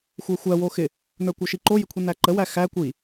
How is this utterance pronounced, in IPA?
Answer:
xʷ ə˞ xʷ æ w o x ɪ | n ə˞ kʷ ə˞ ʃ i ǃ o j ɪ kʷʰ i n æ ǃ ə w æ x æ kʷ i

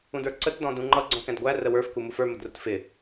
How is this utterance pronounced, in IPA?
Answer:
ũ d ə˞ ǀ ə t d ɔ̃ d ũ ŋ͡ǃ ʌ ɡ͡ǀ ɔ̃ k ɛ̃ d ɡʷ æ r ə w ə˞ f k u m u f ə˞ m ə d r ʊ t f ɪ

